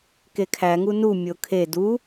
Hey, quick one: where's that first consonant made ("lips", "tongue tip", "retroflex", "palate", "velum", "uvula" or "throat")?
velum